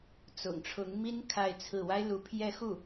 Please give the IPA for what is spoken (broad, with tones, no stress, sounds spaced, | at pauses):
t͡s ʊ̰˨˩ ŋ ʈ͡ʂʰ ʊ˧˥ ŋ m i˥ n kʰ a˥˧ ɪ̯ t͡sʰ ɹ̩˥˩ w a˥ ɪ̯ l u˧˥ pʰ j ɛ˥˧ x u˥˩